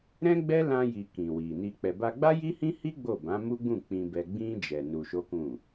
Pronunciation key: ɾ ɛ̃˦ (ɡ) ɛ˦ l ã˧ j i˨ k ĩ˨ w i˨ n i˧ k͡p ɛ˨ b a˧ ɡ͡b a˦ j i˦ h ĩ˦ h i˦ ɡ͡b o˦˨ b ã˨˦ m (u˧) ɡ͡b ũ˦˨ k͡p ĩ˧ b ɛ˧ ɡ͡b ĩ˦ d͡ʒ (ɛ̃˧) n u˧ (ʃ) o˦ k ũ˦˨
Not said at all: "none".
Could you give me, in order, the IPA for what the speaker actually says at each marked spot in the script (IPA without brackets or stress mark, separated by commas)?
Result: ɡ͡b, u˦, ɛ˧, ʃ